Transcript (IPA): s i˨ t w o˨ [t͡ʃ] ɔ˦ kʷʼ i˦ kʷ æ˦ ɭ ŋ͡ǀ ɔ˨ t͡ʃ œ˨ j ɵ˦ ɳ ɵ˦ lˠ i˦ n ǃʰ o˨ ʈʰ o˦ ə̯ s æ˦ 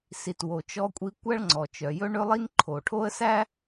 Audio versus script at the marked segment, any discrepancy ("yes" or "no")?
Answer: no